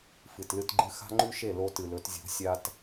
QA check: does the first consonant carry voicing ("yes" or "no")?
no